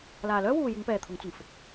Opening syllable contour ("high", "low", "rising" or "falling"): low